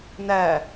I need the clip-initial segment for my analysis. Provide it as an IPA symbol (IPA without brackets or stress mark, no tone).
n